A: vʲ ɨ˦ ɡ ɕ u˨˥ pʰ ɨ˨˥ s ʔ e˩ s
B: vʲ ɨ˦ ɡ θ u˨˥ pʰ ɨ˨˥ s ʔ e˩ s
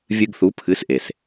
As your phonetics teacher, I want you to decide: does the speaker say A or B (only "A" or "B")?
B